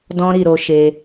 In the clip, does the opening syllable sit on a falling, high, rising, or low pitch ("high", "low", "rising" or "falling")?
high